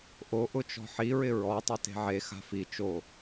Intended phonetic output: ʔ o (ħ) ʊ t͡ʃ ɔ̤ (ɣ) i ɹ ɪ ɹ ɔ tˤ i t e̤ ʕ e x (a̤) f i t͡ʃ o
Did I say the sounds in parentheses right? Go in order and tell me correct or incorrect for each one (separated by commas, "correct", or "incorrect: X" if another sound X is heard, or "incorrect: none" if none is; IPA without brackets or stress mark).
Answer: incorrect: ʔ, incorrect: ħ, correct